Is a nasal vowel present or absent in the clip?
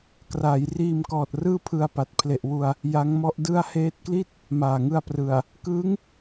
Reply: absent